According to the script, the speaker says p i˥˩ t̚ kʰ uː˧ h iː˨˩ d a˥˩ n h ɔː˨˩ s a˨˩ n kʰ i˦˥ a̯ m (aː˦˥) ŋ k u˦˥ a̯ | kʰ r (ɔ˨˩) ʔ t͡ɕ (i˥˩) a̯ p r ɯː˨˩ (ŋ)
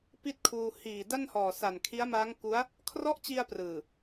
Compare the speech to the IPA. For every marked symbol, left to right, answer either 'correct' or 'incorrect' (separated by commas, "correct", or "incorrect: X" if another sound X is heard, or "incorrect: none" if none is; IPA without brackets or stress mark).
correct, incorrect: ɔ˦˥, incorrect: i˧, incorrect: none